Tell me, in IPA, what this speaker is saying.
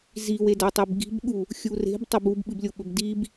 ziwedatˤeb ɡi̤bɠu | xʲure̤b tˤɐbub ɓɨblʲoɓɵbdib

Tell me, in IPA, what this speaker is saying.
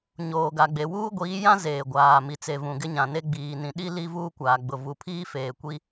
ɲoː˨ɡa˨ɡ͡be˨ wuː˦ɡʷiː˨˦jã˦ zeː˨ɡʷaː˨ mi˨t͡se˨vũ˨ ɡɪ˦ɲã˨ne˦ ɡ͡biː˨nĩ˨ ɗi˦ li˦ vuː˦kʷaː˨ɡ͡bʊ˨ vu˨pʰiː˦ feː˨kʷi˦

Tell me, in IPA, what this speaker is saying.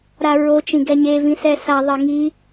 ɾaɹo t͡ʃĩɡɛɲe vĩsɛsa ðˤeŋi

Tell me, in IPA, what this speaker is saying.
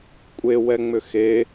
kʷʼewɛŋ͡mʏ xe

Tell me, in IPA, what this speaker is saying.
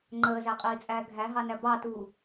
ŋ͡ǃəːzæqʼiːt͡sʼæː ɡʱæɦɑnæ bɑtuː

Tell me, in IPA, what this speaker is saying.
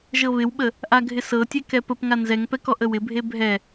ʒɤβɪwɓə | ʔaɡʱɪsɤtʲe kɛpəpŋa nzɛŋpɛk ɔʔəwɪbʱe bʱɛ

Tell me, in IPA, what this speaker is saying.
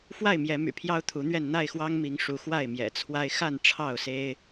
fwa˥˨ɪ̯mjɛ˨˦my̰˨˩ pʰjɑ˦ʊ̯t̪ʰu˨˦n̪ɥɛ˥˨n n̪a˥˨ɪ̯xwɑ˦ŋmi˨˦ŋʂu˨˦ xwa˥˨ɪ̯ mjɛ̰˨˩t͡sʰwa˦ɪ̯ xa˥˨n ʈ͡ʂʰɑ˥˨ʊ̯se˦ɪ̯

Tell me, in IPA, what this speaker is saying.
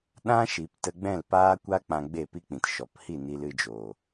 ɗã˦ʃi˨p tə˧ɡ͡bɛ̃˦˨lpaː˦kʷa˦ k͡pã˧ɡ͡be˦˨pi˦k͡pĩ˨t ʃɔ˨phi˦˨ ni˧lɨ˧d͡ʒoː˨

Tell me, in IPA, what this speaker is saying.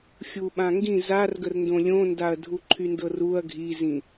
xʲuɓãŋɡĩ zarɡərndõ lʲõndaɐ̯ dʱuǃʰyndɤruɐ̯ ɡʱizĩ

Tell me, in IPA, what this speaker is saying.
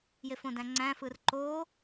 jefõdæ̃ŋ͡ǀæ̃ fɯrǃo

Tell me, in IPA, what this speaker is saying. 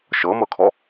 ʃɤmɤkʰɔ

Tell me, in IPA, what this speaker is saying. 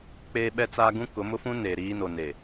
k͡peː˦ɓɛ˦t͡saː˦ ɡũ˦ kʊ˨˦mʊ˦fũ˦ neː˨ɾiː˦no˨ ne˨

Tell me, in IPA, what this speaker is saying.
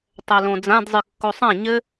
tˤɛlõd͡zãdzˤɨ kːosˤã ɲɘ

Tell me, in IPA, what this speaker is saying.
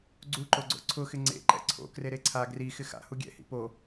ɡ͡ǀuǃoɡ͡ǀo̰ ǀʰʊxɪ ŋ͡ǀḛǃɛ̰ ǀʰo̰kre ɾeǀʰa ɡri xɪxa̰ huɡʲɛ̰hḭ po

